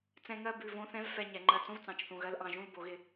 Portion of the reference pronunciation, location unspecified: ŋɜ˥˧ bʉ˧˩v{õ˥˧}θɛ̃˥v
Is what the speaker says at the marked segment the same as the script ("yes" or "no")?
yes